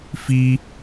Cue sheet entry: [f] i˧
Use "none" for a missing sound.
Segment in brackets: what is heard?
f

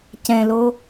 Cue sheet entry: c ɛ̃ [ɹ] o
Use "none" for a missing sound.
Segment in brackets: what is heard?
l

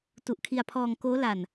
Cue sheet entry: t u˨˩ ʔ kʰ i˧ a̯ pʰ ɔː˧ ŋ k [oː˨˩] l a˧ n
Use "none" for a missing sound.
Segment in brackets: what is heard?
oː˦˥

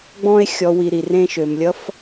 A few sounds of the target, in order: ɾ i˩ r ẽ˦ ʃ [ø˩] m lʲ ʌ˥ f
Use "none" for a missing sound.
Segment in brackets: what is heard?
ø˩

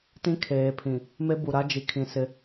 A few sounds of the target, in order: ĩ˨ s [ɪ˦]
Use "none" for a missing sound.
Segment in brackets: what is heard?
ɪ˦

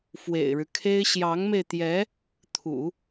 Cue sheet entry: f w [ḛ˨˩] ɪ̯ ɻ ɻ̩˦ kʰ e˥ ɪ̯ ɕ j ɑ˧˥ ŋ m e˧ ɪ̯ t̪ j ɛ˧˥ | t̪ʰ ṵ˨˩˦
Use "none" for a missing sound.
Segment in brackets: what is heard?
ḛ˨˩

